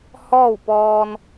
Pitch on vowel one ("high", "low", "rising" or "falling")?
falling